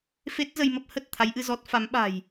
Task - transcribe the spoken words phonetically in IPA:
f e˦˥ t̚ z ə˧ j m ə˦˥ p̚ h ə˨˩ t̚ t̪ʰ a˨˦ j ʔ ɨ˧ z ɔ˦˥ t̚ f a˨˦ m ɓ a̤˨˩ j

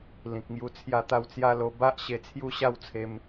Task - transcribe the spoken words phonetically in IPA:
l ĩ˨ k̚ ŋ j u˧ t͡sʰ j a˥˧ t̪ a˥˧ w t͡s j a˦ l o˧ b a˦ ʔ ɕ e˧ t͡sʰ j u˥˧ ɕ a˥˧ w t͡sʰ e˧ m

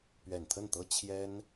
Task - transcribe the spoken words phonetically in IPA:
p ɥ ɛ˨˩ n t̪ʰ ə˥˩ n t̪ ɤ˥ t͡ɕʰ j ɛ˥ n

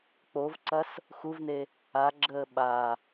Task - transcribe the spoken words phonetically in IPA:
k͡p o v ǀ ɐ s | x u v n e | a ɡ͡ǁ əː ɓ a

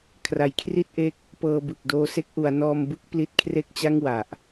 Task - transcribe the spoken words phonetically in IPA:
kʰ r a˩˦ j kʰ r i˥˩ t̚ ʔ e˦˥ k̚ | p ɤː˧ b ɯ˨˩ k̚ d oː˧ s e˥˩ k̚ ʔ u˩˦ a̯ n ɔː˧ m b ɯ˥˩ k̚ p l i˦˥ t̚ kʰ r e˥˩ k̚ t͡ɕ a˥˩ ŋ w a˨˩ ʔ

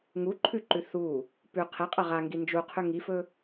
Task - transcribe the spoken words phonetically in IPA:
ŋ u ǃʰ ʉ ǃ ʉ θ u | p ʉ qʰ e qʼ ɐ ʁ a ŋ ɡ i n d͡ʒ u qʰ ʉ ŋ i f ɵ

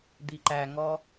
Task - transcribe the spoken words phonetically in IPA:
d̪ i ǃ æ ŋ ɔ

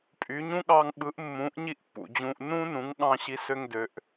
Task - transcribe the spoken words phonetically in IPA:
pʼ y˩˥ ɲ ũ˥ ɠ ɑ˧ ŋ ɓ ɯ˩˥ ʔ mː ũː˩˥ ʔ ɲ i˥ ʔ pː ṵ˩ d͡ʑ ũː˧ ʔ n ũː˥ n ũ˩˥ ŋ ɠ ɑ̃˧ ɕ i˩˥ s ø˧ ŋ d ø˩˥ ʔ

